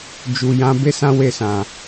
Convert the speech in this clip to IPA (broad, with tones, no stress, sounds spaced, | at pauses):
d͡ʒ u˨ j ã˨˦ b e˦ s ã˦ w e˦˨ s ã˨